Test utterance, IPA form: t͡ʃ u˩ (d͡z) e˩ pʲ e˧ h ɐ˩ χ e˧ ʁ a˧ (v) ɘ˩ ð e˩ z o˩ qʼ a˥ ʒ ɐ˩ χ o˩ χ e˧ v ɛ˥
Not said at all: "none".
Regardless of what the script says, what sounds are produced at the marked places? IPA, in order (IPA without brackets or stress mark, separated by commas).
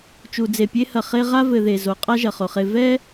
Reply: d͡z, v